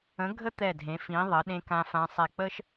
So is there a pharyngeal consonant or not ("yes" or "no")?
no